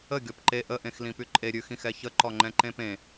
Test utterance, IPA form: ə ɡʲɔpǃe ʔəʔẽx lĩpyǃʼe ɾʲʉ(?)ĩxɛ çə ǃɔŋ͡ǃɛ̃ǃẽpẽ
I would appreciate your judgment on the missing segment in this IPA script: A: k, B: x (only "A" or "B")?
B